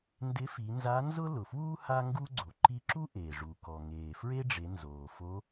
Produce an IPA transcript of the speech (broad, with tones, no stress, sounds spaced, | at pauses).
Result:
n d ɪ˧˥ f i˩˧ n z a˧˥ n z ʊ˥ l ʊ˩ f w uː˥ h a˥ ŋ ɡ u˥ ɡ͡ǀ o˩ ǃ i˧˥ ǁ u˥ ʔ eː˩ ʐ u˩ k ɔ˩ ŋ eː˩ f ɹ e˥ ɖ͡ʐ e˩˧ n z oː˩ f o˧˥